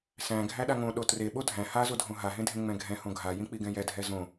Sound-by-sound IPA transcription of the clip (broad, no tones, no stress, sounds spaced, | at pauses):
s æ̃ ɡʱ æ ɗ a ŋ õ ɗ o t r e ɓ o dʱ æ̃ h a z o dʱ õ ɦ a ɦ ẽ dʱ ẽ ŋ͡m ɛ̃ ɡʱ ɛ̃ h õ ɡʱ a j ĩ k͡p i ɡ ɛ̃ j ɛ dʱ ɛ z õ